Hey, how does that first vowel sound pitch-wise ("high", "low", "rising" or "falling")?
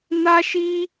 high